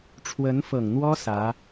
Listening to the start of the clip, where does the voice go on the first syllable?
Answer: rising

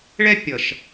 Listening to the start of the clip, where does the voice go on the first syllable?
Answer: high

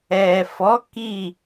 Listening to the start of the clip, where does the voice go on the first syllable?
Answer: low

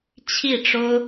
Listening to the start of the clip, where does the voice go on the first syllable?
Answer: falling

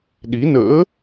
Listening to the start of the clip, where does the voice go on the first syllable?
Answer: rising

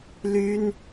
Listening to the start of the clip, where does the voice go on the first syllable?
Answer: high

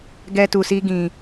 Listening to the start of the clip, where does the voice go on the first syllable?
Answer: high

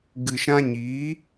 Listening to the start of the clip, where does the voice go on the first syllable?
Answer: low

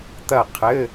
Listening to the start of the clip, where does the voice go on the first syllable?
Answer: falling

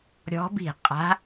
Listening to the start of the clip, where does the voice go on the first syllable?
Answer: rising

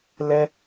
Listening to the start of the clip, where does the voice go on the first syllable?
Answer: high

